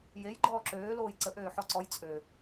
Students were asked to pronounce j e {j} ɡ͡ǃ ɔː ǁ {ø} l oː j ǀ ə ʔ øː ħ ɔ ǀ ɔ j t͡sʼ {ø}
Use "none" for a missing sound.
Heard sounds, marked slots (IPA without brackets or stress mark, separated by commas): j, øː, ø